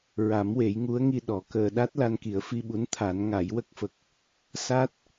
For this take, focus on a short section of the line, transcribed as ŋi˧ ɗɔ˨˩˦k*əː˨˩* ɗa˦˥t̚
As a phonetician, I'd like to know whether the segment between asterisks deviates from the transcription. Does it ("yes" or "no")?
yes